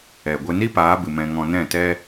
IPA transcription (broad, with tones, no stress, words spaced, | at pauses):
ɛ˨ɡʷe˧ ni˦paː˨˦bɨ˨ mɛ̃˧ŋɔ̃˧ nɛ̃˦˨tɛ˦